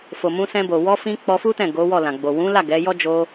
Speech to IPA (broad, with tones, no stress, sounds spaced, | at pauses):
f o˨ m ũ˧ s ɛ̃˧ b o˨ w ɔ˧ f ĩ˧ k͡p ɔ˧ f u˦ t ɛ̃˦˨ ɡ o˨˦ w ɔ˦˨ l ã˨ ɡ͡b o˨ w ũ˨˦ l a˦˨ ɡ ɛ˨˦ j ɔ˦ d͡ʒ o˧